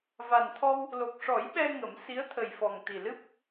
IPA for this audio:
v a˨˩ n t̪ʰ ɔ˧ w | l o˨˩ k̚ ʂ ɔ˨˩˦ j ɓ ɛ˧ ŋ ə˨˩˦ m s i˧˥ ə̯ t̪ʰ ə˨˩ j f ɔ˨˩ ŋ t̪ i˨˩ l ɨ˦˥ p̚

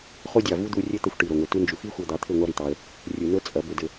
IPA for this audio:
χ o˦ dʲ ɑ˨ v u˦ d̪ u˧ rʲ ɘ˦ t̪ ɤ˧ xʷ ʈ i˨ ɾ o˨ ŋʷ i˨ t u˧ n d͡ʒ u˨ x i˦ xʷ ɤ˧ d̪ ɑ˧ t̪ʰ ɘ˦˨ ŋʷ ɑ˦ ɾ i˨ t̪ ɑ˧ ə̯ | rʲ u˨ n ɤ˦ t͡sʼ ɐ˨˦ b ɘ˧ d ɘ˧

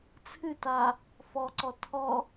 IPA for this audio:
t͡sʰ ɨ t a | f ɔ ǀ ɔ tʰ ɔ

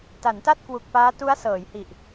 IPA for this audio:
t a˩˦ n t a˥˩ t̚ k w u˨˩ k̚ p aː˦˥ t u˦˥ a̯ s ɤː˩˦ j h i˨˩ ʔ

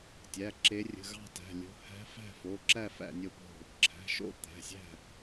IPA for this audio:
tʲ æ˩˧˩ ǁ e˨˦ rʲ ə̤˩˧˩ ɣ ɑ̤˦˨ t æ̤˩˧˩ lʲ o̤˨˦ h æ̤˨˦ f æ̤˦˨ f o˩˧˩ ǁ æ˦˨ f æ̰˦˨ nʲ o˦˨ p o̤˦˨ | ǁʰ æ̤˩˧˩ ʃ o̰˦˨ t̪ æ̤˩˧˩ sʲ æ̤˦˨

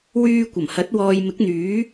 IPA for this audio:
w yː˧ kʷ ɐ˨˩ m h ɐ˨˥ t̚ w ɔː˨ j m ɪ˨˥ k̚ n̪ yː˨˥

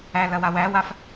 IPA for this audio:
æ l ɐ w a w æ w a f

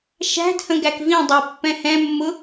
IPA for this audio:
ʃ æ̤ d h ə̃ ɡ æ k v ĩ dˤ ɛ pː ɛ̃ h ɛ̃ mː ʊ

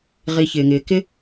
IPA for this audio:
ʁ i˨ ç ɪː˩ ŋ ɪː˩ k ɪ˥

